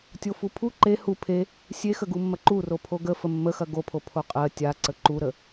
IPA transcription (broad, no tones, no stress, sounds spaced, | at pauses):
tʲ o f u pʰ u ǃ e h u pʰ e | sʲ e x ə ɡ u mː ɐ ǃ u r o pʰ o ɡ ə f ə mː ə x ɐ ɡ o pʰ o pʰ o qʼ ɜ tʲ a ǀ ə ǃ u ɾ ə